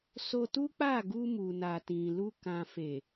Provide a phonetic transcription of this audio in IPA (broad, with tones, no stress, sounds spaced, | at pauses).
s o˧ t u˦ k͡p a˦˨ ɡ u˧ m u˨ n a˨ t ĩ˨ l u˧ k ã˨ f e˨